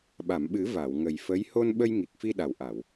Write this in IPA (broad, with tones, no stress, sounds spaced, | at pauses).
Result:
ɓ a˨˩˨ m ɓ ɨ˨˩˦ v a˨˩˨ w ŋ ə˨˩ j f ə˧˥ j h o˧ n ɓ ə˧ j ŋ i˨˩ k̚ f i˧ ɗ a˨˩ w ʔ a˨˩˨ w